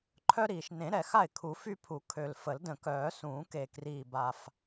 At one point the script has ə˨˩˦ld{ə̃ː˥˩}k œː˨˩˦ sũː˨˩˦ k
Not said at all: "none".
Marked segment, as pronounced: ə̃ː˨˩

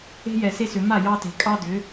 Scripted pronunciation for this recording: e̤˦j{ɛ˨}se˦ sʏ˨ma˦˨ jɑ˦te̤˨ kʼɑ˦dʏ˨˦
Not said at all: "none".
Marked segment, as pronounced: ɛ˨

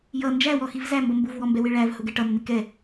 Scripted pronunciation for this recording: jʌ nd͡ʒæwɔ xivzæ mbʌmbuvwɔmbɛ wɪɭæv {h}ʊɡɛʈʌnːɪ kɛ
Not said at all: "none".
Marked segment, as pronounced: h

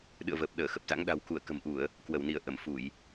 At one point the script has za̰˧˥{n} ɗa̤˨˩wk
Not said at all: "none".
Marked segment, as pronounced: ŋ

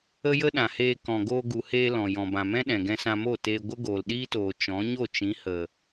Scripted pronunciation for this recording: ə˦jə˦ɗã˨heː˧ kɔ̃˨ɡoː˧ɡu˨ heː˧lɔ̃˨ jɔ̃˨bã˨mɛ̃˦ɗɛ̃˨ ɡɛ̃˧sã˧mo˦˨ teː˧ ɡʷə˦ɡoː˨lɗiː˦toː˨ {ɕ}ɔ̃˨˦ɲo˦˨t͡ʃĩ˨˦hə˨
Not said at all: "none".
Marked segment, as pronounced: t͡ʃ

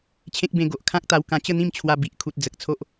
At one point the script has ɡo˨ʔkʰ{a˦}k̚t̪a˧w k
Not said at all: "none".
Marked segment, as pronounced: ã˦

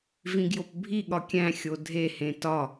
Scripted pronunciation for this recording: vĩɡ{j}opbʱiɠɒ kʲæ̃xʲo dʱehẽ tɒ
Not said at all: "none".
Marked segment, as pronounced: j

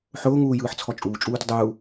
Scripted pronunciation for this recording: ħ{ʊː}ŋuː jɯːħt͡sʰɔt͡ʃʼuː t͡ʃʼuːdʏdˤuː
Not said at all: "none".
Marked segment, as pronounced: ʊː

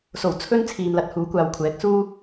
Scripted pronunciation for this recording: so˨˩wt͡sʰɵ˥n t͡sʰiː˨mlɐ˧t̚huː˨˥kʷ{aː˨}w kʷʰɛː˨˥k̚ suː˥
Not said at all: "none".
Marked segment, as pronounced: aː˨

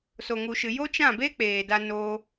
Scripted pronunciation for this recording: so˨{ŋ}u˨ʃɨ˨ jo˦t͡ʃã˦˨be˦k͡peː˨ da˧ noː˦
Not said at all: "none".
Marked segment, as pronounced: ŋ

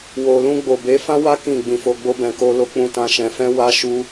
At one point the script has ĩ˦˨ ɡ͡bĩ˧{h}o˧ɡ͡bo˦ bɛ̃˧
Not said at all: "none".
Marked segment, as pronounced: f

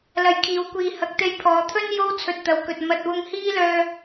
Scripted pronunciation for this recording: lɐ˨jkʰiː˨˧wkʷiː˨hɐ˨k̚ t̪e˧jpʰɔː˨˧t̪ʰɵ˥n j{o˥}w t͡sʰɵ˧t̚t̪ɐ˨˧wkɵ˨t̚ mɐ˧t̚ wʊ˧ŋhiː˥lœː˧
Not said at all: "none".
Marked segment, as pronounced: o˥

